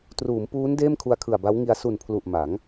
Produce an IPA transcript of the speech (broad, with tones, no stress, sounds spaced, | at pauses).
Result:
t r uː˩˦ m p uː˦˥ n d eː˥˩ m kʰ u˧ a̯ kʰ ɯ˨˩ a̯ b a˦˥ w ŋ i˧ a̯ s u˨˩ n pʰ l u˨˩ ʔ m a˩˦ ŋ